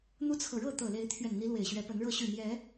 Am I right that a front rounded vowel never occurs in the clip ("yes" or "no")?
no